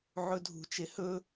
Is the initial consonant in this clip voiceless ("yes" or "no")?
no